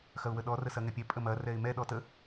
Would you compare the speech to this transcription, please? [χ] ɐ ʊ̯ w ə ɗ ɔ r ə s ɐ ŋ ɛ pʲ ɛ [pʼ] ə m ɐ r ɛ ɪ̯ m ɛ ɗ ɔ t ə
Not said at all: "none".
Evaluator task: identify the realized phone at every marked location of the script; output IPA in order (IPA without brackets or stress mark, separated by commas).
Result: x, pʼ